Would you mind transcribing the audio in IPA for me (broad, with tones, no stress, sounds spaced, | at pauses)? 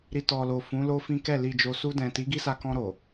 ɾ i˨ t ɔ˨ l o˨ f ũ˨˦ l o˦ f ĩ˦ k ɛ˦˨ l i˨ d͡ʒ o˨ s u˧ d ɛ̃˨ t i˨˦ ɡ i˦ s a˧ k ɔ̃˧ ɾ o˨